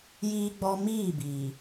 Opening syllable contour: high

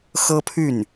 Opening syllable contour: high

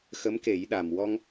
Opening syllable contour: rising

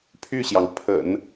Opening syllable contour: falling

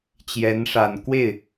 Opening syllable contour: rising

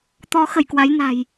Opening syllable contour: rising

